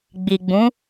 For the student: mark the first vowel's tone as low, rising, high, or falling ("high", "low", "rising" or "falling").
low